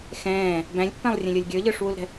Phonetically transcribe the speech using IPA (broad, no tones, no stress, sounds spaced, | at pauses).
x ɛ̃ː | b æ̃ lʲ pː æ̃ lˠ rʲ ɛ̃ lʲ ə˞ lʲ ɡʲ ə˞ ʎ ə˞ ʂ w u l ɾ ɛ̤